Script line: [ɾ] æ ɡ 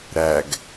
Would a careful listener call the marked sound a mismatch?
no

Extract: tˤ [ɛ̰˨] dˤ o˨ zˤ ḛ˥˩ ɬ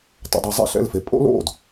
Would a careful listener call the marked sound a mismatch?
no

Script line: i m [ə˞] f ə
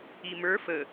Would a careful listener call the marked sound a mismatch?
no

